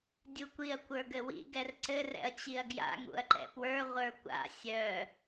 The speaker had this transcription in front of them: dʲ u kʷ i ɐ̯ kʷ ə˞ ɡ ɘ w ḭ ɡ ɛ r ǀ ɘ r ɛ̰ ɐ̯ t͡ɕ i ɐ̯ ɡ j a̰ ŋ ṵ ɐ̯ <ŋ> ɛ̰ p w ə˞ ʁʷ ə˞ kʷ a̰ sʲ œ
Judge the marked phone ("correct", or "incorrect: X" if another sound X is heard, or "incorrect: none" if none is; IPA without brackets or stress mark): incorrect: ǃ